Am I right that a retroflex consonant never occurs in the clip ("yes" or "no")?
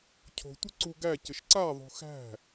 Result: yes